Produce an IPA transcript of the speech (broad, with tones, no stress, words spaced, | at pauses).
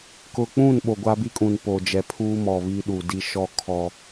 kʊ˨k͡pũ˦˨n ɓo˨ɡʷa˦bi˦kʼũ˨n po˨ d͡ʒɛ˨pʰuː˦ mɔ˨βi˦ɗu˨di˦ ʃɔ˦kʰɔ˦